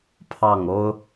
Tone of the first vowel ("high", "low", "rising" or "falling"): falling